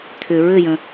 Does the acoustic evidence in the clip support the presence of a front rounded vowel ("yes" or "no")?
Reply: yes